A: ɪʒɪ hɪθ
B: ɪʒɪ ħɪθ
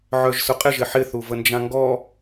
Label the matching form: B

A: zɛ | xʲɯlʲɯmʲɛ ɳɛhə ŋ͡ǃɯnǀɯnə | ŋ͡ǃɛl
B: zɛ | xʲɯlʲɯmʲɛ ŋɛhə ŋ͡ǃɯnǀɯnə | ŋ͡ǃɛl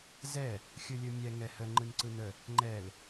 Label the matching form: B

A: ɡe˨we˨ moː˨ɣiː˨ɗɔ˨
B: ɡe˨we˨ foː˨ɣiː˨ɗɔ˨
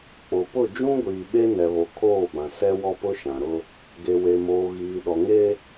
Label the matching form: A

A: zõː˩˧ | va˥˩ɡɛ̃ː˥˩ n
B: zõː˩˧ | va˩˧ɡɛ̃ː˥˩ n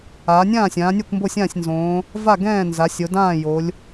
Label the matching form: A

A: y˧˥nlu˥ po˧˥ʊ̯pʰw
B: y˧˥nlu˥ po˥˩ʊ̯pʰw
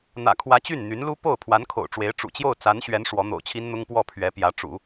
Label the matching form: B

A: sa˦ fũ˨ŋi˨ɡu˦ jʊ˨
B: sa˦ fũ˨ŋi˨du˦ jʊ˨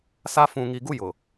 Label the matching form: A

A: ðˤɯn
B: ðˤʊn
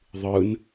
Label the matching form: A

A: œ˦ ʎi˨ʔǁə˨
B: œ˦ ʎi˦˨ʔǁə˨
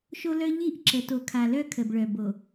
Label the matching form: B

